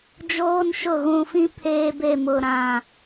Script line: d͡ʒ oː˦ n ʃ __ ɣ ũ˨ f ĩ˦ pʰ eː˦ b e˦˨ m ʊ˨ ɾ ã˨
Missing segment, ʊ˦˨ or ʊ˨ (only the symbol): ʊ˦˨